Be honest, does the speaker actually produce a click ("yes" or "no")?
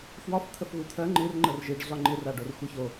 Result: yes